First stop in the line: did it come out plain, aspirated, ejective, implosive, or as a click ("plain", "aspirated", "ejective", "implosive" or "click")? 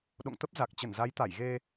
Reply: implosive